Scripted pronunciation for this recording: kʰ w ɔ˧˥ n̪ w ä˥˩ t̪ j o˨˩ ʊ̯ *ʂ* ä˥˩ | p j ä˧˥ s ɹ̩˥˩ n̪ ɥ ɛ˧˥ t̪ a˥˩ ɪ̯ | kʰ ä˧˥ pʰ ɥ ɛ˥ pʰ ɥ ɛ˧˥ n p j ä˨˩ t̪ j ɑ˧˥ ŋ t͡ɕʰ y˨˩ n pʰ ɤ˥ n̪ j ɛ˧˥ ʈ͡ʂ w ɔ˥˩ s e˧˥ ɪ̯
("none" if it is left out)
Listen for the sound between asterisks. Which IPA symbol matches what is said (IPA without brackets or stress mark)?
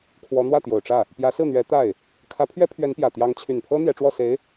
ʈ͡ʂ